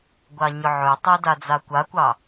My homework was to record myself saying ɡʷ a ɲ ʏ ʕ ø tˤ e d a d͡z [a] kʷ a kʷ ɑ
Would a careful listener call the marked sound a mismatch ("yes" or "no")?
no